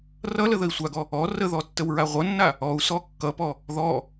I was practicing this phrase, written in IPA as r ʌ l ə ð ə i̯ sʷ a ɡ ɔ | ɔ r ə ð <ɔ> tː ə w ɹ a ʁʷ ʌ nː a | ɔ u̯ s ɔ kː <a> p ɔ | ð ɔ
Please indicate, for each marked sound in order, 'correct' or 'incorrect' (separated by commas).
correct, incorrect